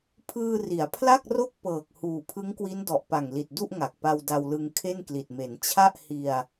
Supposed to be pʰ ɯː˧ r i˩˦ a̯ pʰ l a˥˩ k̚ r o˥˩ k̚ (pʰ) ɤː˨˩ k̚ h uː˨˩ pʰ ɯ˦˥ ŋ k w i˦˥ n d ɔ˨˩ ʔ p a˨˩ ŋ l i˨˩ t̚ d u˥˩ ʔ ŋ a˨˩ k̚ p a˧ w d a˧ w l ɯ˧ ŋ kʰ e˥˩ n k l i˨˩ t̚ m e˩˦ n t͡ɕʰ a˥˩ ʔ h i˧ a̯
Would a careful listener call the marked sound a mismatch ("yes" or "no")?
yes